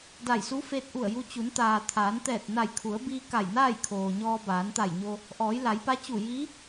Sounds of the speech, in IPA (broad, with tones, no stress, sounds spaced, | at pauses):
d a˧˩ j s u˧˥ f eː˧ t̚ ʔ u˧˩ ə̯ j u˧ t͡ɕ u˩˧ n t̪ aː˩ t̪ʰ aː˩˧ n t̪ ɛː˧˩ t̚ n a˧˩ j kʰ u˩˧ ə̯ b iː˧ k a˧˩ j n aː˥˨ j kʰ oː˩ ɲ ɔː˧ b aː˩˧ n t̪ a˧˩ j ɲ o˧ | ʔ ɔː˩˧ j l a˩˧ j p a˧˥ t͡ɕ u˧˩ j iː˧˥